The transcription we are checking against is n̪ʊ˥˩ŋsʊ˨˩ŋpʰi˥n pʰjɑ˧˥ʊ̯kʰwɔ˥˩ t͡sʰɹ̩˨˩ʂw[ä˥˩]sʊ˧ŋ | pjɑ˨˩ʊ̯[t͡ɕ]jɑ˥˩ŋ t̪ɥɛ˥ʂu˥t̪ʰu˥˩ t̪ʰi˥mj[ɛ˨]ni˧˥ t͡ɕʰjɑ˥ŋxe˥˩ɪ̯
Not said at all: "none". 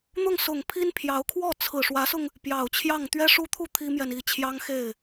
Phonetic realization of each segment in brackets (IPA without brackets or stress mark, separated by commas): ä˧˥, t͡ɕʰ, ɛ˨